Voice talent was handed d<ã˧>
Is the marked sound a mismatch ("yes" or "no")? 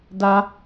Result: yes